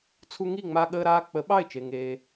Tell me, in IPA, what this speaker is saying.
t͡sʰ u˧ ŋ i˥˩ ŋ͡m a˧ ɠ əː˧ ɾ aː˧ k͡p ə˩˥ ɓ ɑ˥˩ ɪ̯ t͡ʃ e˩ ŋ eː˩

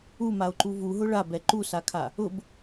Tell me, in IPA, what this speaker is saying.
u m a o̯ ǃ u v u ɦ ʊ ɭ a b ɛ ǃ u s a kʰ a | ʊ b

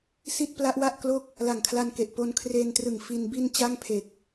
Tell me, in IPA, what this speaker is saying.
s i˥˩ t̚ p l a˦˥ ʔ w a˥˩ ʔ k l o˥˩ k̚ | l a˨˩ ŋ kʰ l a˧ n k e˨˩ ʔ p o˧ n kʰ r eː˧ n t r ɯ˨˩ ŋ f i˧ n b i˧ n t͡ɕ a˥˩ ŋ pʰ e˨˩ k̚

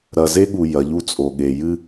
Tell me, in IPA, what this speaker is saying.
ɾ ɐ˨ z e˦ ɠ u˨ j ɐ˨˦ ʎ u˧ t͡sʼ o˨ ɠ e˨ j ɨ˦

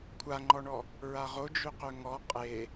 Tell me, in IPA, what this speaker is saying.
kʷʰ a ŋ͡ǃ ɔ ɳ ɔ | ɹ a ʁ o d͡ʒ ø q ø ŋ ɔ qʼ e

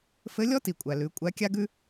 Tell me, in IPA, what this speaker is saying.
f ɘ˧˥ lʲ ɔ˥ t i˩ kʷʼ æ˩ l ʉ˩˧ kʷʼ æ˧˥ kʲ a˥ ɡ ʉ˥

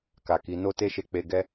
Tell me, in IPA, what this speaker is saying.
k a˨ k i˨˦ n o˦ t e˦ ʃ e˧ k͡p e˧ ɡ ɛ˦

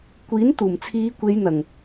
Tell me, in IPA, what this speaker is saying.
kʷ iː˨˥ n t̪ uː˨˩ m t͡sʰ iː˨˧ kʷ e˨˧ j n̪ ɐ˨˩ ŋ

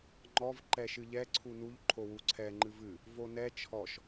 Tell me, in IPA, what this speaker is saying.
ŋ͡ǃ ɔ v ǃ ɛ ʃ ɨ ʎ ɛ ǀʰ u n u ʎ ǃʰ o w u ǀʰ ɛ ŋ͡ǃ ɨ v ɨ | v o n ɛ t͡ʃʰ ɔ ʃ

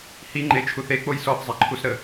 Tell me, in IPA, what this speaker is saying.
h i ŋ͡ǃ e t͡ʃʰ u θ e k͡p o j s ɔ θ zˤ ɛ ǃʰ u s ɾ ə

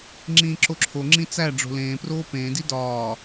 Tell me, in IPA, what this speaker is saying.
ŋ͡ǁ ĩː ǁ o ǁʰ o ŋ͡ǁ ĩ t͡s æ ɖ͡ʐ o̤ l ẽː p r oː p ẽː d i d ɒː

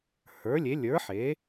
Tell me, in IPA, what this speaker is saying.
h ə˞˨˥ lʲ e˨˥ lʲ ə˞˨˥ ħ e˨˥

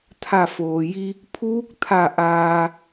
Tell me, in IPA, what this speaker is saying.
t̪ʰ a˧˩ f oː˩ j i˧ | pʰ uː˧˥ k̚ t̪ʰ a˧˩ ʔ aː˧

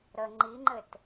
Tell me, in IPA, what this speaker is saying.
ɾ ə ŋ͡ǃ i ŋ͡ǃ ɘ t

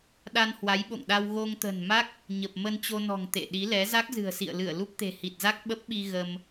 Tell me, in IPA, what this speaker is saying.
ɗ a˧ n h w a˨˦ j ɓ o̰˧˨ ŋ ɗ a˧ w ɣ o˧ ŋ t̪ ə̤˨˩ n m a˦˥ k̚ | ɲ ə˨˩ p̚ m ə˧ n t͡ɕ o˧ n ɔ̤˨˩ ŋ t̪ ḛ˧˨ ɗ i˨˦ l ɛ˨˦ z a˦˥ k̚ z ɨ̤˨˩ ə̯ s ḭ˧˨ ə̯ l ɨ˧˩ ə̯ l u˦˥ p̚ t̪ e̤˨˩ h i˨˩ t̚ z a˦˥ k̚ ɓ ə˦˥ p̚ ɓ i˧ ɣ ə˧ m

